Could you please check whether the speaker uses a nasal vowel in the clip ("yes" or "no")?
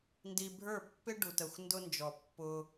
no